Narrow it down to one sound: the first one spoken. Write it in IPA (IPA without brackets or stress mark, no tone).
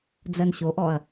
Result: d͡z